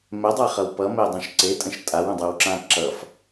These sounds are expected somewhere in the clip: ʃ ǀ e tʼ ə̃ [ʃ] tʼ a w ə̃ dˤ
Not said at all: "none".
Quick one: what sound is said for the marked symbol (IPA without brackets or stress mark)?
ʃ